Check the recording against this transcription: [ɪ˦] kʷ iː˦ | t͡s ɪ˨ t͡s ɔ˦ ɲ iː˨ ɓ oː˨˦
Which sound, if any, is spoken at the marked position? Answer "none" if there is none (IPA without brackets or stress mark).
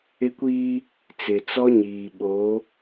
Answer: ɪ˦